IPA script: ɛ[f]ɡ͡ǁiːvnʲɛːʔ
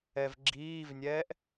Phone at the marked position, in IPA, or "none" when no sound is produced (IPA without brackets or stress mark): v